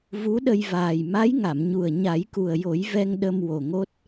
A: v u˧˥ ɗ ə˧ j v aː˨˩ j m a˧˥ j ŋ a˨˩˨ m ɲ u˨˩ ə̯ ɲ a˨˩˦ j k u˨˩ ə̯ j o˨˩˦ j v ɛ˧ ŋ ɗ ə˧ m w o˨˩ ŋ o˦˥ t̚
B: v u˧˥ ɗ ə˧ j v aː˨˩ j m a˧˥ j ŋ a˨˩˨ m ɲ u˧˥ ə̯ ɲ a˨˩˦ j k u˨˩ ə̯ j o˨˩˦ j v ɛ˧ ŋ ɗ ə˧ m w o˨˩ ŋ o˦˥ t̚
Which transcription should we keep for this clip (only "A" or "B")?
A